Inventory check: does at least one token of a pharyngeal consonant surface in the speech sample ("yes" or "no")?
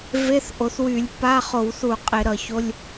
no